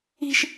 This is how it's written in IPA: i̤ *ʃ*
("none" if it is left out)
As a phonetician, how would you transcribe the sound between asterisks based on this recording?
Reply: ʃ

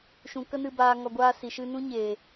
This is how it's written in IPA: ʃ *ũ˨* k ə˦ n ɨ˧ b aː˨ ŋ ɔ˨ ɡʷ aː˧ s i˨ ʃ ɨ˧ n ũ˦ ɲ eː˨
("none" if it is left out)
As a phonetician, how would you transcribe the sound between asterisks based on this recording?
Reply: ũ˨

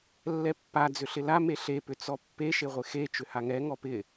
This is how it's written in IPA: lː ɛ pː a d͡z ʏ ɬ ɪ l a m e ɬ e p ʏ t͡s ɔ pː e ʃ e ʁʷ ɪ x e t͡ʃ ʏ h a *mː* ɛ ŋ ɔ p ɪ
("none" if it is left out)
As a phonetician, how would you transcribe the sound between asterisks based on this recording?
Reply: ŋ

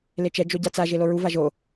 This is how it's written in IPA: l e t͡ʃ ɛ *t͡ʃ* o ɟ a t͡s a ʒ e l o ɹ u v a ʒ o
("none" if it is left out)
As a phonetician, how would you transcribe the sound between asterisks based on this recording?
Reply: d͡ʒ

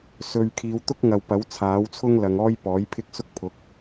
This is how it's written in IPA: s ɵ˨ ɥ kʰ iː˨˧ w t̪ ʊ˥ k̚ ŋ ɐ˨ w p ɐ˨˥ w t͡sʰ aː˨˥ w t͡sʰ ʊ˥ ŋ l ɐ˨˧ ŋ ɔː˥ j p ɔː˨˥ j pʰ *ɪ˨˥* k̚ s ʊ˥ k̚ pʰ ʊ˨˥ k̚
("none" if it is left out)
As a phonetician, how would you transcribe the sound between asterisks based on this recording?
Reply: ɪ˥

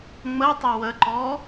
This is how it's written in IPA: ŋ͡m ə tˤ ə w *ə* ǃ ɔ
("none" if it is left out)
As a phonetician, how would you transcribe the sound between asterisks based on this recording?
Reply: ə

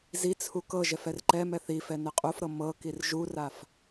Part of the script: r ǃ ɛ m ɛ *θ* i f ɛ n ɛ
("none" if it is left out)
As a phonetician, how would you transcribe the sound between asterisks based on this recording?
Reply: θ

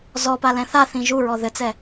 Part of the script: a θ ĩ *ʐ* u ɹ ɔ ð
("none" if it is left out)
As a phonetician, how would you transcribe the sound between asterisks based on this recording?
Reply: ʒ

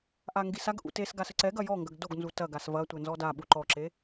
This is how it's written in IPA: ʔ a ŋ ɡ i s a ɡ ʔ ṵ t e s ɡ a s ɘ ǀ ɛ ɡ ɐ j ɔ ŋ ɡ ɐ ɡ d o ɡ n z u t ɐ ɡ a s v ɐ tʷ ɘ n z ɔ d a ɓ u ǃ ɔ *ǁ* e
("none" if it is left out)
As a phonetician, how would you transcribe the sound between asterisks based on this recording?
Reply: ǁ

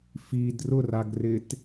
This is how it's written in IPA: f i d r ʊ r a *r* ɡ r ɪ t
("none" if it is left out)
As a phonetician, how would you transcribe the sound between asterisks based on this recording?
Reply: none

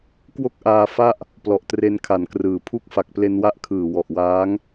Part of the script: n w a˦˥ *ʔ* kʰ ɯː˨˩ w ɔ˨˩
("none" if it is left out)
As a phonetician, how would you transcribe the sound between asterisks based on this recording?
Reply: ʔ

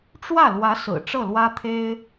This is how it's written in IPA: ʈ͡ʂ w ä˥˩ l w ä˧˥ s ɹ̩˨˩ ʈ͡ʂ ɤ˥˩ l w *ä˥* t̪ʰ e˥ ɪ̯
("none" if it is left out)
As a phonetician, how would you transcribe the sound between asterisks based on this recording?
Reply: ä˥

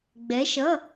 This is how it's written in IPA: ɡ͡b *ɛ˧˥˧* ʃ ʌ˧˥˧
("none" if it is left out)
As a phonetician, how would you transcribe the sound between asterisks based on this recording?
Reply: ɛ˧˥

